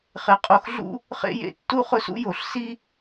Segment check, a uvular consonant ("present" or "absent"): present